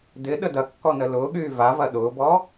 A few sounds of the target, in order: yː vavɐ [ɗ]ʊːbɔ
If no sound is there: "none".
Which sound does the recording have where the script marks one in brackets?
ɗ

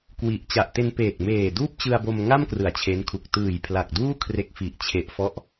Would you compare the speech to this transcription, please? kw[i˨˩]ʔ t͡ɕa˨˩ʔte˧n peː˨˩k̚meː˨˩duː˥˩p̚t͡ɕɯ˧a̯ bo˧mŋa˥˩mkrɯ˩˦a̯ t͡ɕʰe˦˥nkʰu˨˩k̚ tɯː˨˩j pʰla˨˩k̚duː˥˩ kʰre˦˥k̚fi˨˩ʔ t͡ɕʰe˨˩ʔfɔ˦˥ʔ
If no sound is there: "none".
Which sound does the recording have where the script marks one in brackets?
i˨˩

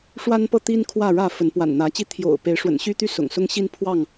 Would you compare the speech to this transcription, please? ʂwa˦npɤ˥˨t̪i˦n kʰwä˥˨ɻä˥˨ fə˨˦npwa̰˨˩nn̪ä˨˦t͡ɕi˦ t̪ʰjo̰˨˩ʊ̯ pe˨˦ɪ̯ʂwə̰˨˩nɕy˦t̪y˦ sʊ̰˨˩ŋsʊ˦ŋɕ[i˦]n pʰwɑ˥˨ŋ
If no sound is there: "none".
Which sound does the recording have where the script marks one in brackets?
i˦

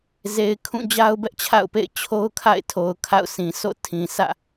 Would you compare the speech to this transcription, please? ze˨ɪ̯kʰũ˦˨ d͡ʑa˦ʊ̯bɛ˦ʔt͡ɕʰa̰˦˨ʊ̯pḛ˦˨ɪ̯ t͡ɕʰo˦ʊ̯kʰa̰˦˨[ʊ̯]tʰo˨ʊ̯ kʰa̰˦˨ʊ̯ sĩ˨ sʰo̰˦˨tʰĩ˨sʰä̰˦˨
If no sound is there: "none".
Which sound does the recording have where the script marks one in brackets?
ɪ̯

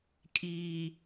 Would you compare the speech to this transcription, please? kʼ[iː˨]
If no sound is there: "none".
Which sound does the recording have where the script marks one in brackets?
iː˨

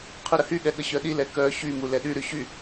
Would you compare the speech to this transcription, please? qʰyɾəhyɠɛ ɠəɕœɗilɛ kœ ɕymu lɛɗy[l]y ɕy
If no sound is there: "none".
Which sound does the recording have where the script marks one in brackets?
ɾ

